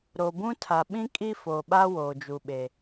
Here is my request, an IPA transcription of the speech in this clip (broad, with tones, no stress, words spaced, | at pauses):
ɾo˨bũ˦tʰa˨ ɓĩ˦kʼi˦fo˨ɓa˦ woː˨d͡ʒu˨ɓe˨